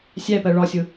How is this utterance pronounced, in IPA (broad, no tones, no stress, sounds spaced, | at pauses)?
sʲ æ p ɜ ɭ ɒ sʲ ʊ